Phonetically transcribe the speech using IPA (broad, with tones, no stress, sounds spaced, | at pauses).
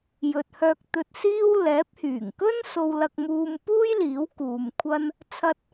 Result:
j ɵ˨ t̚ h œː˧ k̚ t̪ ɵ˧ t̚ s iː˥ w l ɛː˨˥ p̚ h yː˨˩ ŋ k ɵ˥ n s o˧ w l ɐ˧ k̚ m uː˧ m p uː˥ j l iː˨˥ w k uː˨ m kʷʰ ɐ˥ n | t͡sʰ ɐ˧ t̚